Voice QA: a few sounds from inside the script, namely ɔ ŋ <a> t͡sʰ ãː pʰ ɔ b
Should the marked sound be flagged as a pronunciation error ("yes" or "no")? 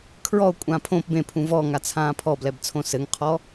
no